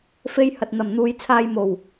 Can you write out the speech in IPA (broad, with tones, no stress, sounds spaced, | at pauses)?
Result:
f e˧ j h ɐ˨ t̚ n̪ ɐ˨˩ m n̪ uː˨ j t͡sʰ aː˧ j m o˨˩ w